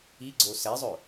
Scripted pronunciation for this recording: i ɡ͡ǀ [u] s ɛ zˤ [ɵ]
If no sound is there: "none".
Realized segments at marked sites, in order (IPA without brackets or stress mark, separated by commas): o, ɵ